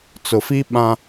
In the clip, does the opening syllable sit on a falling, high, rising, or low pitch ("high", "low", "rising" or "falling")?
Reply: low